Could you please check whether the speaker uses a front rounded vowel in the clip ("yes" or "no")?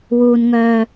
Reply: yes